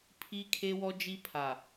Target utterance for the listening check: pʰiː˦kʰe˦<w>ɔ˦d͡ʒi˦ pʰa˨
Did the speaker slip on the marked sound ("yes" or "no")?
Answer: no